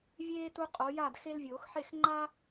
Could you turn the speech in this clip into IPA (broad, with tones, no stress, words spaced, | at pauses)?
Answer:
vʲeː˦ tu˦qʼo˨˦ja˥˨d xe˦lvʲoː˨˩˦xħe˥˨x ŋ͡ǃa˦